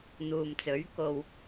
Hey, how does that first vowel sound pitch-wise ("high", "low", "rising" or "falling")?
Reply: low